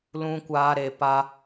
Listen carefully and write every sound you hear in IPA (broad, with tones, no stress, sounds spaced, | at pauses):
l ũ˦ kʷ aː˦ ɾ e˧ p a˦